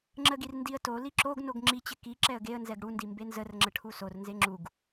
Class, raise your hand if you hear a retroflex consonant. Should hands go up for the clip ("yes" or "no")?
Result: yes